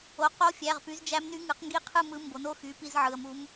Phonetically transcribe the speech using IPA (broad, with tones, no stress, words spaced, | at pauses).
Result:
o˩˧˩ qo˧˥fʲæ˩˧˩ʁ py˩˥zd͡ʒæ˧˥mny˧˥ ŋɯ˩˥qŋɡi˥˨ qʰɯ˥˨ mɯ˧˥ mbo˩˥no˥˨ xy˩˧˩ pi˥˨zʕɯ˩˧˩ə̯mu˧˥m